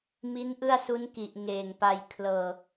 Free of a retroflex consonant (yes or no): yes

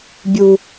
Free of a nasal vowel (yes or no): yes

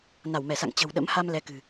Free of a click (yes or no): yes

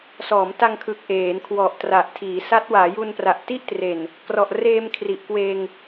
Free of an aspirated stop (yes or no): no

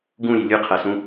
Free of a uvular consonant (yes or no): no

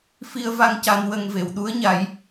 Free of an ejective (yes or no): yes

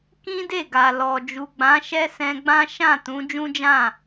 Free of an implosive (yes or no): yes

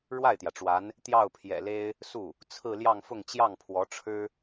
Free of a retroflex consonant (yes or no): no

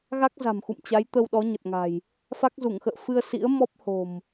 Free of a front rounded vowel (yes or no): yes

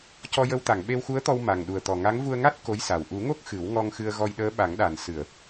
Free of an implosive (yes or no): no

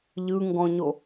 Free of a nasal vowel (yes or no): no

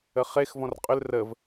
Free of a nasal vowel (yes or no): no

